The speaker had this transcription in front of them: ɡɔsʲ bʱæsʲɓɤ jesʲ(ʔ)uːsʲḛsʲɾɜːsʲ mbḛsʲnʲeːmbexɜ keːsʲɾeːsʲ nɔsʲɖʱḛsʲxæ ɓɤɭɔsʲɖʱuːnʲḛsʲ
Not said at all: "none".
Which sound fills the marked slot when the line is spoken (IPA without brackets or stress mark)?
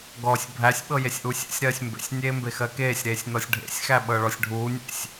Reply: ʔ